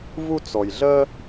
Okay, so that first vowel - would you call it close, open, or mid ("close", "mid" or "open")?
close